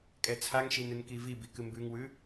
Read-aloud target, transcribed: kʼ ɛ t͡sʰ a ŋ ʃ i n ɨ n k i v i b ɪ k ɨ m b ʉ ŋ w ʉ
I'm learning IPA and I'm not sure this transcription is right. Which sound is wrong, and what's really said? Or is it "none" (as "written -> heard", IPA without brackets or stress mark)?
ɪ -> i